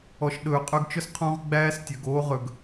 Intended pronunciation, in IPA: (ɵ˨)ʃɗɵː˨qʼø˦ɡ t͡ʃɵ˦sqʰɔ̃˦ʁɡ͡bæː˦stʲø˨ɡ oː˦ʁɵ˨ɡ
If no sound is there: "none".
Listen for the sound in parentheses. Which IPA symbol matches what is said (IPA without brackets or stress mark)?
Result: ɔ˨